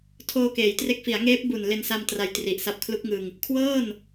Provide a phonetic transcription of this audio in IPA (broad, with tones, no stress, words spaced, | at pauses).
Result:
tʰoː˧keː˩˦jtre˦˥k̚ fi˩˦a̯ŋeː˦˥p̚ bu˨˩n le˧nsa˧m tra˧jtri˨˩ʔsa˦˥p̚ kʰlu˦˥k̚ŋɯ˧ŋ | kʰwɤː˥˩n